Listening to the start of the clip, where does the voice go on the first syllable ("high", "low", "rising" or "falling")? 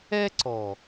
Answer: high